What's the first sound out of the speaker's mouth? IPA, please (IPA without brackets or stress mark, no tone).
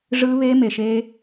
ʐ